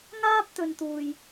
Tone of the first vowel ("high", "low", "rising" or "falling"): high